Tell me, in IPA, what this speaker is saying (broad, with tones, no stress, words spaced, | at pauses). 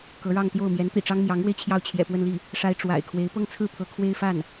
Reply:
kɤ˧˥ɻɑ˥˧ŋt̪jo˥˩ʊ̯ mjɛ˧˥nt̪ḭ˨˩ʈ͡ʂɑ˥ŋ mjɑ˧˥ŋɻwe˧ɪ̯ t͡ɕʰjɑ˥˩ʊ̯t͡ɕʰjɛ̰˨˩pwə˥˧nli˥˩ | ʂa˥ɪ̯ ʈ͡ʂwa̰˨˩ɪ̯ kʰwe˧˥ɪ̯pɤ˥ŋ t͡sʰɹ̩˥˩pʰɤ˧˥ kʰwe˥ɪ̯fa˥˩n